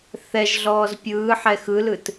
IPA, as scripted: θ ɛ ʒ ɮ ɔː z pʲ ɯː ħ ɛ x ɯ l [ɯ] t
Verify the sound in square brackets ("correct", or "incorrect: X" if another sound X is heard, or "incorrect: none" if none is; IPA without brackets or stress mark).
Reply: correct